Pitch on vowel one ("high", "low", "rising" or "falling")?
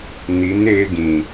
rising